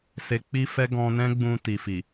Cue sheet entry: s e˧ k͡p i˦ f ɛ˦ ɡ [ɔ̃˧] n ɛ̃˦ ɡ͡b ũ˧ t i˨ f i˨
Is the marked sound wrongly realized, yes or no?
no